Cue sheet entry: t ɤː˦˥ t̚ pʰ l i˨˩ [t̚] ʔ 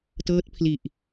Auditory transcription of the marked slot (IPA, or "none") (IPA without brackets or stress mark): none